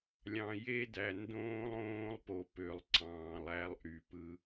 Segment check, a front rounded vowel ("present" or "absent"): present